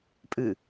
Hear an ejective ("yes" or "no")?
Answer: yes